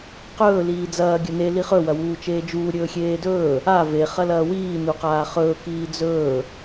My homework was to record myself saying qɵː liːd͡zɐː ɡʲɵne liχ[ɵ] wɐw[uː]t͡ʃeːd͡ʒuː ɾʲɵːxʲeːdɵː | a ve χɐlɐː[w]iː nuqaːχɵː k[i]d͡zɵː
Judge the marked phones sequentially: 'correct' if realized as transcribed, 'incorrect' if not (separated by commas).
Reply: correct, correct, correct, incorrect